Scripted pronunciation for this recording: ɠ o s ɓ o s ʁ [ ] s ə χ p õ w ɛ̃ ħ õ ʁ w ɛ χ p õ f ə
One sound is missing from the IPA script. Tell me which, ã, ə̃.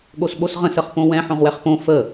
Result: ə̃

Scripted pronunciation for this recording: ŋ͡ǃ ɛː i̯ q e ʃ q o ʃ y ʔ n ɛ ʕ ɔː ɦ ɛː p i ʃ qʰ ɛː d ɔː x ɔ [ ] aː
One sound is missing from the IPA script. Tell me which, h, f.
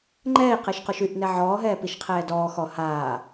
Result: h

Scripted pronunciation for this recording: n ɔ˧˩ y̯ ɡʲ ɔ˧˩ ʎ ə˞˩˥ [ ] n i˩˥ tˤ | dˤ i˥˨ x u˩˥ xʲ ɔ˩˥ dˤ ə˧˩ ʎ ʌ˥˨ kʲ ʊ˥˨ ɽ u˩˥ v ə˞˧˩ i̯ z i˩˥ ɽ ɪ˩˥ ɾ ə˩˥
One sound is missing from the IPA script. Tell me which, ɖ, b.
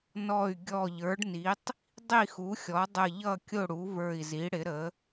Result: ɖ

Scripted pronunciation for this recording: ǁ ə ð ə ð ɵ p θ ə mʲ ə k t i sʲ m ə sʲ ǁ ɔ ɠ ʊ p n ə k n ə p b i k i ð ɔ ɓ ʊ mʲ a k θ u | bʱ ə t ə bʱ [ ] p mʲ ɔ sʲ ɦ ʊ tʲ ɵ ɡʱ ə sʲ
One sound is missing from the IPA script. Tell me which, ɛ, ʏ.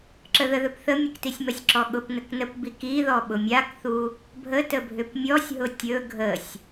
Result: ʏ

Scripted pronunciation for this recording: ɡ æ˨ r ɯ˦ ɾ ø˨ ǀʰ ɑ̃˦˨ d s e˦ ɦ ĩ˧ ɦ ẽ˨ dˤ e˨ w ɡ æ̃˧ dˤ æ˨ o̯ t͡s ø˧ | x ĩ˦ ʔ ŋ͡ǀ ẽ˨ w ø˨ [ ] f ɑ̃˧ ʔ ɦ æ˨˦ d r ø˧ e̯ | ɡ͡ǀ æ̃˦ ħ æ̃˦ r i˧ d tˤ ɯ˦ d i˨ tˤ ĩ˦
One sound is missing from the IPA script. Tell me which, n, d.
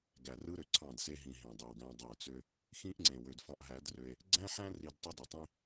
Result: d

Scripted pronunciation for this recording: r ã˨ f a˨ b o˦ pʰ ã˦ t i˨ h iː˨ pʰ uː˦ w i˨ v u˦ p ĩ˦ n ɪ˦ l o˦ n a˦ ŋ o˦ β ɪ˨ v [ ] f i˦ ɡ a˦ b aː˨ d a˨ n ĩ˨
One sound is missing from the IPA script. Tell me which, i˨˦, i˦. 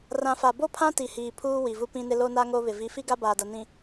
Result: i˨˦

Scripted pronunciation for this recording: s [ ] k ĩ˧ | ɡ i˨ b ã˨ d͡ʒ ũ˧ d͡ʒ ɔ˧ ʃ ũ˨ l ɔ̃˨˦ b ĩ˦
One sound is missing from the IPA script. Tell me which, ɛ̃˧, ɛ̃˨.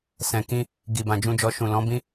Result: ɛ̃˨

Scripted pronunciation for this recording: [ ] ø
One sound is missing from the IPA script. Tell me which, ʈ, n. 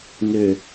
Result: n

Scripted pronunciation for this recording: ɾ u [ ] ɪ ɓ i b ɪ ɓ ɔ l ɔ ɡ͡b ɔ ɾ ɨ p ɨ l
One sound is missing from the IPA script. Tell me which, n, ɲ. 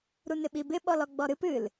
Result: n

